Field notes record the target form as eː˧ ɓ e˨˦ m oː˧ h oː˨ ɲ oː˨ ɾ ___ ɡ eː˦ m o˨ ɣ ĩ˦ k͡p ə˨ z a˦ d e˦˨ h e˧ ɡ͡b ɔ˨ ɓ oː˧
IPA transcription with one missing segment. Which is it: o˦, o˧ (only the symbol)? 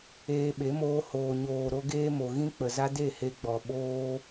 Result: o˧